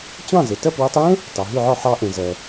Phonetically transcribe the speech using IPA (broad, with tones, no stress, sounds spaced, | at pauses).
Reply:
t͡ɕ ɑ̃˥˩ z e˩ t ɜ˥˩ p w e˧ tˤ j ẽ˥ | t ɑ˩ ɦ ʉ˥˩ ʕ ɔ˥˩ ħ ɑ˧ ʔ ẽ˩ z ɜ˩